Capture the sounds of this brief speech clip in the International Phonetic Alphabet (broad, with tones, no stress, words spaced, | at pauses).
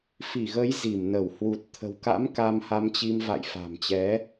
fi˧˩ɣə˨˦j zi˧˩mnə˧˩w hwu˨˩t̚t̪ʰə̤˨˩wka̰˧˥m ka˧mha˧mt͡ɕi˧m va̰˧˨jfa̤˨˩mt͡ɕɛ˨˦